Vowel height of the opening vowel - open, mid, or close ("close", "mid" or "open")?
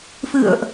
close